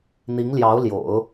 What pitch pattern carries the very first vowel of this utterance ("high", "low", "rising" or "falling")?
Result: rising